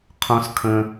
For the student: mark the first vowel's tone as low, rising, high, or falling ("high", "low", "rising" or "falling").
high